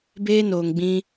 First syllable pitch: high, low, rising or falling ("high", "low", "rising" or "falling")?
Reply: high